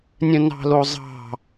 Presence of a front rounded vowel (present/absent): present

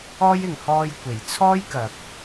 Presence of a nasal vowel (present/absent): absent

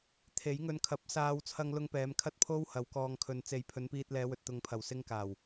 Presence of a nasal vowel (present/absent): absent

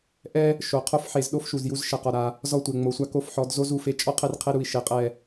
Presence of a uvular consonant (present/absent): present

